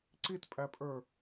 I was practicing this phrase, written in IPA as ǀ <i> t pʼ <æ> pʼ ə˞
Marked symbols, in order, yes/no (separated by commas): yes, yes